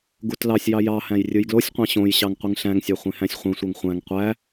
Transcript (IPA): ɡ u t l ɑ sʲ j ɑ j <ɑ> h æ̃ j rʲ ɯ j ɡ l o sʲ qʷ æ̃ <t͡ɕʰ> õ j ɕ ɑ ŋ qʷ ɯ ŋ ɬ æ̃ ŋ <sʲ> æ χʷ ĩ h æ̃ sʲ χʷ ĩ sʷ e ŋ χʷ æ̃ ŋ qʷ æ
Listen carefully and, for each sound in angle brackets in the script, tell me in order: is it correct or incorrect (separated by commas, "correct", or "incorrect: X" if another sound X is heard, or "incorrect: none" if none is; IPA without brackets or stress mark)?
correct, incorrect: ɕ, correct